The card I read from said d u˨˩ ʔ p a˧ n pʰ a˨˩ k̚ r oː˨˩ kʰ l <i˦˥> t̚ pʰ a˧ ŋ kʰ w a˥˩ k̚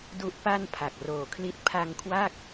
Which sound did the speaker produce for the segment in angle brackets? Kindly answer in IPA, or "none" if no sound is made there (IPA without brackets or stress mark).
i˦˥